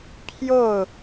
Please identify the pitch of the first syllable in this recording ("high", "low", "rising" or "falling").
falling